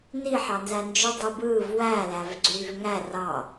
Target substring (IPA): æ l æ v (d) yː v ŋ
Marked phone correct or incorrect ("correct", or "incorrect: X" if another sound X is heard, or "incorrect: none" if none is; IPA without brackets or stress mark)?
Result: incorrect: ɡ͡ǀ